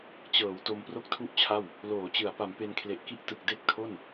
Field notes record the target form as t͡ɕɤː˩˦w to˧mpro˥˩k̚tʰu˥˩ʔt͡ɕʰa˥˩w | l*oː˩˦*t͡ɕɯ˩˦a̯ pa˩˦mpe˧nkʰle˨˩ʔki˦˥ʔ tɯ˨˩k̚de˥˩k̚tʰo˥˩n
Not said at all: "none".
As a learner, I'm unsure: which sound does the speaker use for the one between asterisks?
oː˩˦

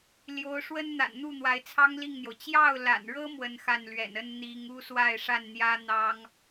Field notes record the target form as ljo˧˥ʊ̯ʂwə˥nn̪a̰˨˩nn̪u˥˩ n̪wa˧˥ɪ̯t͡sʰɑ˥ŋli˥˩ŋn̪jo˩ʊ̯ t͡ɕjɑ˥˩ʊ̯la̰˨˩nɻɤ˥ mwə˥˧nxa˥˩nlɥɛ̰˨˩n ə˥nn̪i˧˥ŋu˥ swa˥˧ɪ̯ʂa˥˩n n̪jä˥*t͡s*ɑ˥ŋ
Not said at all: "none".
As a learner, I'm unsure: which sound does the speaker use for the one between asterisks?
n̪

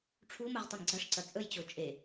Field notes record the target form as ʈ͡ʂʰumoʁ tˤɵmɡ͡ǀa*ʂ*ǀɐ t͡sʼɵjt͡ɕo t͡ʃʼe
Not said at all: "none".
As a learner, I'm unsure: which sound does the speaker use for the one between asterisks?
ʂ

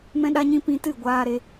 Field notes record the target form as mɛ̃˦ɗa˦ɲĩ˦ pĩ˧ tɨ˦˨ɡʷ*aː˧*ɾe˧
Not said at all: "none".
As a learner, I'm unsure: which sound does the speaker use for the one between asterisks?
aː˧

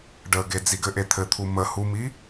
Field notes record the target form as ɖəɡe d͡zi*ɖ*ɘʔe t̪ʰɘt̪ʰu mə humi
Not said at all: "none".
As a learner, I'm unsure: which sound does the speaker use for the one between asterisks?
ɡ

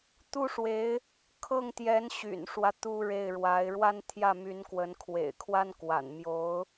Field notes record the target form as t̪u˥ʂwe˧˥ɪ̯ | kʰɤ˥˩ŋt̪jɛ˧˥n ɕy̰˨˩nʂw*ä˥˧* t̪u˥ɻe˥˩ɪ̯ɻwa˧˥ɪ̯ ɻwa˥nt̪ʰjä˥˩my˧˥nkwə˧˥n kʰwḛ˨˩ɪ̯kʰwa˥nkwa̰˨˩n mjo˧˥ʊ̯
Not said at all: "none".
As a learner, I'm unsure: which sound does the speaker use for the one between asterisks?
ä˦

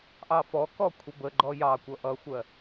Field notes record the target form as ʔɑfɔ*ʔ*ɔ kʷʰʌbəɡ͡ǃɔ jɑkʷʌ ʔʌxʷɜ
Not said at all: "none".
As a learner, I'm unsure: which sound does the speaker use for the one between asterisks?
k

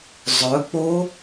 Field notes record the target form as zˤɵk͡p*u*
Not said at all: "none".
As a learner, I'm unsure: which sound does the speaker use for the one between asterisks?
o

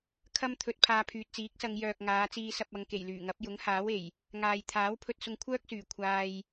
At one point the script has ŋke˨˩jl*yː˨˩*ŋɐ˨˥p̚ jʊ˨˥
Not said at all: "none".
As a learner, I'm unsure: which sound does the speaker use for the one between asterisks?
yː˨˩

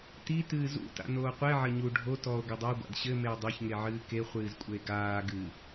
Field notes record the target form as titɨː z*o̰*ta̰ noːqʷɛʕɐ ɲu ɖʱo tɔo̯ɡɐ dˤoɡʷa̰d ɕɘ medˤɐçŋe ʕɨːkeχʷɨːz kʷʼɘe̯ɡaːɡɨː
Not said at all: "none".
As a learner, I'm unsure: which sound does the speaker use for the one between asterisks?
ṵ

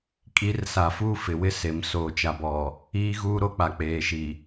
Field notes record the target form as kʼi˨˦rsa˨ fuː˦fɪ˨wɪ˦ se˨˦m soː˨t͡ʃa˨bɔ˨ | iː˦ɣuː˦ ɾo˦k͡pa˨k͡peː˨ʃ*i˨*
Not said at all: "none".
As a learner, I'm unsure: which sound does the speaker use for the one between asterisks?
i˨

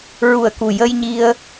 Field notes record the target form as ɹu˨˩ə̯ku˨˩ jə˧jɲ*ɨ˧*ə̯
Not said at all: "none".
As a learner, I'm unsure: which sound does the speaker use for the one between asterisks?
i˧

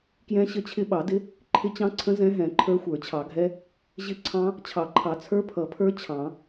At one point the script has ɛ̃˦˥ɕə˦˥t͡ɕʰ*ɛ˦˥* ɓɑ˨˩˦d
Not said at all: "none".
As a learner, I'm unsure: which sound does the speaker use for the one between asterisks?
ɪ˦˥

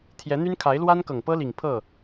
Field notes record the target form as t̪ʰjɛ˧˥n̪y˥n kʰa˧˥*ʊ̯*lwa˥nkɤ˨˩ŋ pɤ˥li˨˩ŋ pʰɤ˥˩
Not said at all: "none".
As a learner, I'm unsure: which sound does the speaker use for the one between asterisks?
ɪ̯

